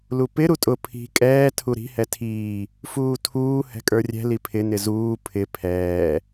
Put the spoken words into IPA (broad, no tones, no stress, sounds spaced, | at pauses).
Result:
l u p ɪ ɾ u tʼ ʊ pʰ i̤ kʼ ɛː tʰ u ɾ i̤ h ɛ tʰ iː | f uː tʰ uː h ɛ̤ kʼ ə˞ rʲ ɛ̤ l i pʰ ɪ n ɪ z uː pʰ ɪ pʰ ɛː